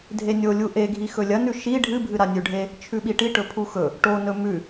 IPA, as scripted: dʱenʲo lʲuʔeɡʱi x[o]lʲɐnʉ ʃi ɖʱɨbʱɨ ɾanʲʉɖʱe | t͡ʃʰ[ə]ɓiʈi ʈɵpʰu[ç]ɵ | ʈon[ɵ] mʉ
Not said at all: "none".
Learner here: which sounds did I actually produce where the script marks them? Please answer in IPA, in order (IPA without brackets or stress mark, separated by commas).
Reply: ɵ, ʉ, x, ɵ